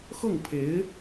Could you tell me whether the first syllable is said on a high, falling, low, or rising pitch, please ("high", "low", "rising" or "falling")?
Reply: falling